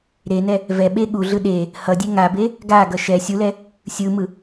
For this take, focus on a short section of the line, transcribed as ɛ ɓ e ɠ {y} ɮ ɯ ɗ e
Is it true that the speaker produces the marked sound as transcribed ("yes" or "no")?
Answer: no